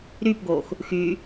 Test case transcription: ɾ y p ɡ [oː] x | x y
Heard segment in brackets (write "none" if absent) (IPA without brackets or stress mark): oː